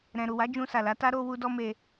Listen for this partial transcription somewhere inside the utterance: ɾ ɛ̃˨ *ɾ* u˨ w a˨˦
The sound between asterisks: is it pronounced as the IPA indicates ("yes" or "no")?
yes